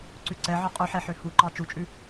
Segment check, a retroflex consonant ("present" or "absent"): absent